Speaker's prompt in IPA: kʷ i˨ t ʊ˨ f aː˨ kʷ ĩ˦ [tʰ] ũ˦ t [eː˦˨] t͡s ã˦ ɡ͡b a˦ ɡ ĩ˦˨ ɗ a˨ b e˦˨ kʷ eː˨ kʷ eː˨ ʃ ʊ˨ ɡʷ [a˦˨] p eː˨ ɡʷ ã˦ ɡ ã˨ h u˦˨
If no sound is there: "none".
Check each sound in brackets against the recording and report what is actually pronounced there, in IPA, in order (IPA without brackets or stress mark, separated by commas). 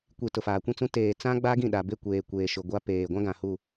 t͡s, eː˨, a˦